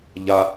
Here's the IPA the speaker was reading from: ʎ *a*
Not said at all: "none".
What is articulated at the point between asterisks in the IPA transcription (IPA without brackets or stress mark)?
a